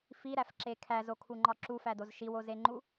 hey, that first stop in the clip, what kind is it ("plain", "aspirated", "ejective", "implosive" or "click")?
click